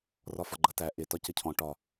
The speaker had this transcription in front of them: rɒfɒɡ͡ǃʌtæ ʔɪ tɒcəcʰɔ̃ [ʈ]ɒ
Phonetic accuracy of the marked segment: correct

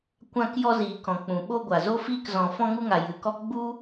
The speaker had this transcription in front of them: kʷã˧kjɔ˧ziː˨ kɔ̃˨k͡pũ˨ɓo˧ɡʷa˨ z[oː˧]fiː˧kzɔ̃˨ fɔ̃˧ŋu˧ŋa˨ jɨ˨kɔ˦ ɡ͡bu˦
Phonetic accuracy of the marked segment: incorrect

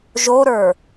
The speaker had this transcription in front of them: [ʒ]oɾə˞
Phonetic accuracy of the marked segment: correct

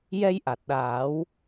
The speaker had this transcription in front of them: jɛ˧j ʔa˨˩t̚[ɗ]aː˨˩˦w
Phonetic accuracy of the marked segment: correct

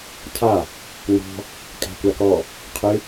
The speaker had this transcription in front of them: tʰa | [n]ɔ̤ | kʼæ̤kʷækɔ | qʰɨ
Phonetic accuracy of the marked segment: correct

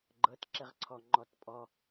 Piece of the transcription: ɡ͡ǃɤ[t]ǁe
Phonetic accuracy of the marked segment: correct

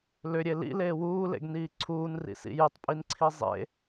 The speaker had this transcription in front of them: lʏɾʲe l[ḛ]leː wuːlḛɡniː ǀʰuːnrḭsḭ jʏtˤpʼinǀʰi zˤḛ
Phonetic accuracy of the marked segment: incorrect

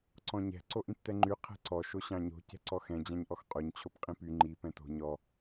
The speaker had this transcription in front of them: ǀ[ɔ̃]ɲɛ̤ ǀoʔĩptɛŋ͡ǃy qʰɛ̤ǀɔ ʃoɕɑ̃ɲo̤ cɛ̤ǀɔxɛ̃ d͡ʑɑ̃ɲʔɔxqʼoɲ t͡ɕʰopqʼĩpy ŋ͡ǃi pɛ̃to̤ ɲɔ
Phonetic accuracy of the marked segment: correct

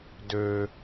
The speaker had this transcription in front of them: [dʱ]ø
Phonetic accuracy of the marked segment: incorrect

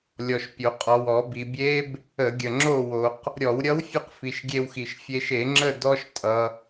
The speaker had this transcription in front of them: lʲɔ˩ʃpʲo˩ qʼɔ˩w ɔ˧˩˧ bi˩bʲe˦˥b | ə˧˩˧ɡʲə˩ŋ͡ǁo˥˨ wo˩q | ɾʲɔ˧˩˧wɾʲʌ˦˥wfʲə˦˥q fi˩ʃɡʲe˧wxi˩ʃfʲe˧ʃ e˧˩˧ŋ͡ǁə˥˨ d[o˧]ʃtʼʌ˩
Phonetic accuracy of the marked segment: incorrect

